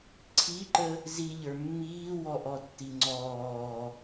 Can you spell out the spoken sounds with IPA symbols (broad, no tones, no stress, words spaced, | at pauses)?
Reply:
ǀʰiǃə | ziʎə˞ mːiːwɔʔɔtːi ŋ͡ǀɔː